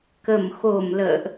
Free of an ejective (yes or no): yes